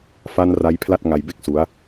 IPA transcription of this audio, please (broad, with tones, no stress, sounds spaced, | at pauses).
f a˧ n r a˦˥ j pʰ l a˥˩ t̚ ŋ a˧ j b e˥˩ k̚ s u˦˥ a̯